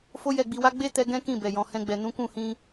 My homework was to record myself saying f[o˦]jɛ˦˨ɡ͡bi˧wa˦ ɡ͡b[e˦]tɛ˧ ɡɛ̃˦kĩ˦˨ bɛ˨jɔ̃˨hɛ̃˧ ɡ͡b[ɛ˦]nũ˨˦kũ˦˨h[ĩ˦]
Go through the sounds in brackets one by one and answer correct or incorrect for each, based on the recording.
correct, correct, incorrect, incorrect

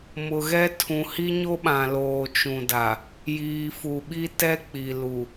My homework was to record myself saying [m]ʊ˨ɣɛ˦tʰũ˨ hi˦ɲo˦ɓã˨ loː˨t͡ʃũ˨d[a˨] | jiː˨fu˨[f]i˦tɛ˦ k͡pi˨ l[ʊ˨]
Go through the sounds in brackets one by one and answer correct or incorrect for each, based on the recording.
correct, correct, incorrect, incorrect

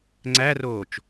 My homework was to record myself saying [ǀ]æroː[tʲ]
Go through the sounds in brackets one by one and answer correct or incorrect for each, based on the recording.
incorrect, incorrect

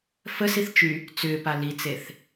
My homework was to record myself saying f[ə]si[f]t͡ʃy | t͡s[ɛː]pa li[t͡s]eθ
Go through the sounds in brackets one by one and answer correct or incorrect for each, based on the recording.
correct, incorrect, incorrect, correct

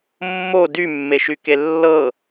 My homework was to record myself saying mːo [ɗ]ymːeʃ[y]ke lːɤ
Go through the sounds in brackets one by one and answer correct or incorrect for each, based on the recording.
incorrect, correct

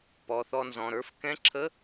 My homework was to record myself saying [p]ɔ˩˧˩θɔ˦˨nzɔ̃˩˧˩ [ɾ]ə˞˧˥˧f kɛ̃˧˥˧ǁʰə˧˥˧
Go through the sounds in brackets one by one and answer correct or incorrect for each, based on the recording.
correct, correct

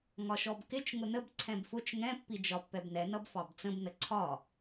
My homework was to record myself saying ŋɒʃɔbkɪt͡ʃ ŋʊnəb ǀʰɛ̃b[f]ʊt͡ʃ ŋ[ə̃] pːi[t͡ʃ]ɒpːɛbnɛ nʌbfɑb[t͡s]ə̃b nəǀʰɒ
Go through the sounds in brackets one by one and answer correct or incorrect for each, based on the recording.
correct, incorrect, incorrect, correct

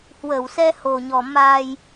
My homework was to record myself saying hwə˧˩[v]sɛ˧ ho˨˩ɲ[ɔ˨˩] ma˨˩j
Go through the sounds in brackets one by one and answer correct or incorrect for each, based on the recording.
incorrect, correct

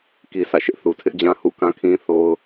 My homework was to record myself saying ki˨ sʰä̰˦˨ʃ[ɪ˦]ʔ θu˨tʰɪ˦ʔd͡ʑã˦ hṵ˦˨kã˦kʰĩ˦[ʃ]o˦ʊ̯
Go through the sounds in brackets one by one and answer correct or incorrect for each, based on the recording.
correct, incorrect

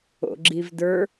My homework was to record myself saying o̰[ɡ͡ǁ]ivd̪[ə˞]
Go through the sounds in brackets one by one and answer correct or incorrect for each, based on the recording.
correct, correct

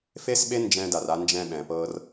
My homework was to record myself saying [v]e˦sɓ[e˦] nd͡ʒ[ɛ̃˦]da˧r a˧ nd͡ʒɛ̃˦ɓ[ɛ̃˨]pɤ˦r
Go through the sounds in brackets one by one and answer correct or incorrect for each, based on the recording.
incorrect, correct, correct, correct

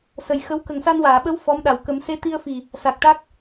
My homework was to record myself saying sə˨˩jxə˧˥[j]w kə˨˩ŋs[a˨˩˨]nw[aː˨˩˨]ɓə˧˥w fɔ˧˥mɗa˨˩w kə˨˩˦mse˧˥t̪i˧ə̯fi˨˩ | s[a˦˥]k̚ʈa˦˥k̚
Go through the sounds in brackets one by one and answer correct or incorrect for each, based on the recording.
incorrect, incorrect, correct, incorrect

